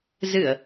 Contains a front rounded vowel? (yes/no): no